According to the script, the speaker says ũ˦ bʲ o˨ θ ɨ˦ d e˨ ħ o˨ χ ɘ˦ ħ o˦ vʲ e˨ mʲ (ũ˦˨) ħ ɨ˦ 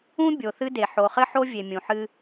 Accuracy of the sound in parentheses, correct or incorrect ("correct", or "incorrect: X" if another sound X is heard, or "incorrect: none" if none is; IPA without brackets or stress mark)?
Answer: incorrect: ũ˨